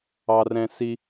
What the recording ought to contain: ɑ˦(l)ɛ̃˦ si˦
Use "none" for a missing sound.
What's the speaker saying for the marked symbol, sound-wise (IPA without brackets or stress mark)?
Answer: r